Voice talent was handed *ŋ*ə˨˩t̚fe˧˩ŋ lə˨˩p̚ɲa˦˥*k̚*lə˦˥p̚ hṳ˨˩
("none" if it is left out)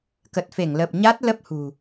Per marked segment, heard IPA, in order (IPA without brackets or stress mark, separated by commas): k, t̚